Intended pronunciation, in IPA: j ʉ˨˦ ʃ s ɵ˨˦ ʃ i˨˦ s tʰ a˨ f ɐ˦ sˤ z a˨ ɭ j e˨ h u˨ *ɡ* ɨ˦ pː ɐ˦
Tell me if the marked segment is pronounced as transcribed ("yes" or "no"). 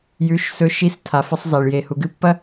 yes